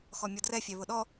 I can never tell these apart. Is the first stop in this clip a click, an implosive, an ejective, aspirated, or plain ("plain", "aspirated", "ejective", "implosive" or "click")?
plain